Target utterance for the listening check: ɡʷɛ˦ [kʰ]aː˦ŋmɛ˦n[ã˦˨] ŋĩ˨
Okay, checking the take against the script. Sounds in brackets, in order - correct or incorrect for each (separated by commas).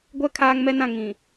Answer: correct, correct